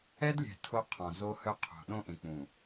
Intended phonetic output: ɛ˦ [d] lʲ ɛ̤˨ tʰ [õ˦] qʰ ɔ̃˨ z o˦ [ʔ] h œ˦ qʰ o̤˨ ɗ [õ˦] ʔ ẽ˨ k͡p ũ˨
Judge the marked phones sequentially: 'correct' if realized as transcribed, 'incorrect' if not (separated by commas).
correct, incorrect, incorrect, correct